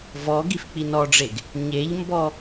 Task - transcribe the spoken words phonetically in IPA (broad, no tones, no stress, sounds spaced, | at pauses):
v ɔ ɡ i f k͡p i n ɔ ɖ͡ʐ e ɡ | ɲ e ʎ m b ɔ